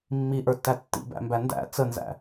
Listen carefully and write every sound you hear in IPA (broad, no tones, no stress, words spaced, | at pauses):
mːiʔə˞tːæ tːḭbæ̰mbæ ndæ̰ t͡sənzæ̰